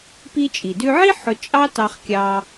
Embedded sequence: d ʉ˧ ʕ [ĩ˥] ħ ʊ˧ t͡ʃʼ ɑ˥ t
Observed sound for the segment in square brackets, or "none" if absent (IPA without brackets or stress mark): i˥